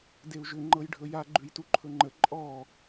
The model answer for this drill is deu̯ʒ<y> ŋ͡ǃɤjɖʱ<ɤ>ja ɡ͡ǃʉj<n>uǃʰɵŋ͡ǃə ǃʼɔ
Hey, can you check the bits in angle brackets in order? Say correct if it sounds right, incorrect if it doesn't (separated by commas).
incorrect, incorrect, incorrect